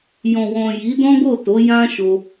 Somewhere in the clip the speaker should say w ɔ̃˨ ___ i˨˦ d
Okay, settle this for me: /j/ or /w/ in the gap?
j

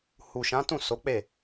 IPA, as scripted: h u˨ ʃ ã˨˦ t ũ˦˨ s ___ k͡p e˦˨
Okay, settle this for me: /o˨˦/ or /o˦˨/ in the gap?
o˨˦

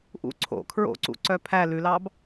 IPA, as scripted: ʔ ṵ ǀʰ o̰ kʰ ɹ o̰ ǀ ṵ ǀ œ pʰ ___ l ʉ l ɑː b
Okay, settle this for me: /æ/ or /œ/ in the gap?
æ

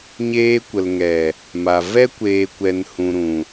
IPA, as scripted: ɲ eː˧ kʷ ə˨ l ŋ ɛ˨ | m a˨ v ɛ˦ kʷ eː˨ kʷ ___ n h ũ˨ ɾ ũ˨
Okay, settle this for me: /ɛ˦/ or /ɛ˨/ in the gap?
ɛ˨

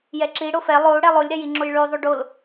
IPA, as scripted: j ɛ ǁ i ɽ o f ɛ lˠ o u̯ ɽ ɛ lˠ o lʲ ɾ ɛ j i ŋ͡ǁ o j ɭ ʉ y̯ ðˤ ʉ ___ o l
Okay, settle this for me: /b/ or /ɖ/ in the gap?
ɖ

